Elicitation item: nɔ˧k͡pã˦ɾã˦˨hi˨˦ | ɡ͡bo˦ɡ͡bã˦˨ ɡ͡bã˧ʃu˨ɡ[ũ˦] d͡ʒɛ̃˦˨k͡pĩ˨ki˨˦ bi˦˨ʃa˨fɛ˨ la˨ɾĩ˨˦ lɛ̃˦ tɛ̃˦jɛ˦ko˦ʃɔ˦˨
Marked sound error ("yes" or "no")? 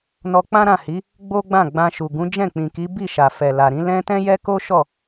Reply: yes